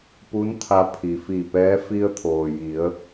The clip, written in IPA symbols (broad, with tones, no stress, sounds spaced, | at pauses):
p u˧˥ n t̪ʰ a˧ pʰ i˩ f i˧˩ p ɛː˧˥ f i˧ ə̯ t̪ʰ oː˩ j i˩˧ ə̯